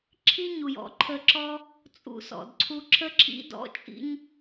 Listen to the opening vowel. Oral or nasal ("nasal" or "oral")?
oral